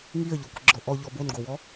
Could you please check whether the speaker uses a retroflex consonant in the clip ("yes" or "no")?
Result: no